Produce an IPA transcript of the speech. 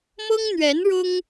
mɤ˥ŋn̪ɥɛ˧˥n ɻʊ˥ŋ

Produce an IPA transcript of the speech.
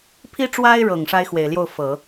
pʰi˥ʈ͡ʂwa˥ɪ̯ɻɤ˨˩ŋ ʂa˥ɪ̯xwe˨˩ɪ̯ljo˥˩ʊ̯ fɤ˨˩˦

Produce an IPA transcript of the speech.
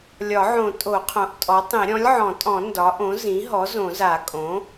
lʲɒ˨˩˦ʕõ˨˩˦ tʼo˨˩˦qʰõ˩˥ʔ tʼɔ˩˥tˤĩ˨˩˦ ɾʲɔ̃˩˥lʲʕɔ̃˨˩˦tʼɔ̃˨˩˦ ndɒ˩˥ʔõ˩˥ zĩ˩˥ɦɔ˩˥ zõ˨˩˦za˨˩˦ kʼõ˩˥

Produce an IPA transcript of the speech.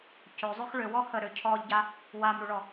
cøzˤøx ɭøwɔ həɾø cʰɔʎɟa | wamɾuɭɔ

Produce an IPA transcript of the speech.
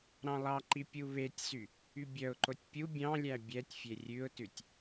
ɾɑ̃lˠɑǃi pʲuβetʲsy | ybʲœʊ̯ǃotʲ pʲu bʲɑ̃lʲæ bʲɛtʲfʲe rʲʉʊ̯tʉtʲ

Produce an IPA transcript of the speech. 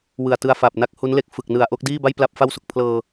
wɯ˨˩a̯tɯ˧a̯ fa˨˩p̚na˦˥k̚hu˦˥n le˥˩k̚fɯ˨˩k̚nɯ˨˩a̯ ʔo˦˥k̚diː˥˩ba˥˩j pla˥˩p̚fa˥˩wso˨˩k̚ pʰlɤː˧

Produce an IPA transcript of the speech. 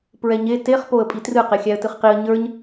pɹɛɲe teχ poə̯pʼitrɨ qexʲæə̯tɨχqiə̯ ɲə˞ɲ

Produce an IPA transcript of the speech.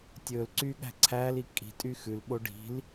tʲɵːlǀyː ɠæ̤ǀʰæːli kʼi̤ tʼyxʉlɓo ɖi̤l

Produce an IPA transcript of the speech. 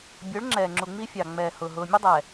bʲʊː˨˦ɭŋ͡ǁɛː˨ŋ͡ǁu˨ ŋ͡mi˦fʲɑ˨ŋ͡mɛː˨hʊː˨ ɦʊː˨mʲʊ˦dˤɛ˨

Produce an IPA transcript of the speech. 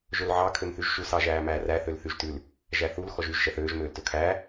ʒɵlʕɑ kʰømθyʒʃu sɑʒæːmæːræ θølθyʒtʉl | ʒæθul xɔʒyʒ ʃɛθøːʒ møːltɵkʰæː

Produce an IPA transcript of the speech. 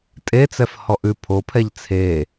tʼet͡sɛf hɔʔʉ pʰopʰɛʎ t͡sʰe

